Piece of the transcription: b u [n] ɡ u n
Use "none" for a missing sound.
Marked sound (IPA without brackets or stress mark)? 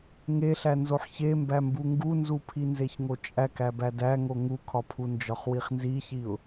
ŋ